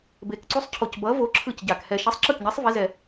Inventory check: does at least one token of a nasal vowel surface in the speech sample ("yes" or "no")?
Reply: no